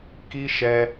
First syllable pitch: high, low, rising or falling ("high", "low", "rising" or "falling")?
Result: high